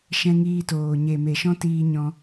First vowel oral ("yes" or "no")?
no